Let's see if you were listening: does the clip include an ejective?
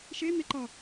no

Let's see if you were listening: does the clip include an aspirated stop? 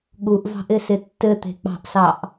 no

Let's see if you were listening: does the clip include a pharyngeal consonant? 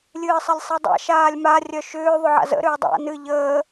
yes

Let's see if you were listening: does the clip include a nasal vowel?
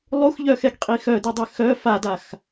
no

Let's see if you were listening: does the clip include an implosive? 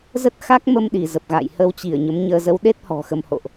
yes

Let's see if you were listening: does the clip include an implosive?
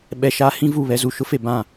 yes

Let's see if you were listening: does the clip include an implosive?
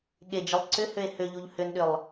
yes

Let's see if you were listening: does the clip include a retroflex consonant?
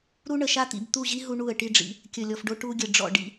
yes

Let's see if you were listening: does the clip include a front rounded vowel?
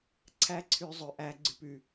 yes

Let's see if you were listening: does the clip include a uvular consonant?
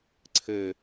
no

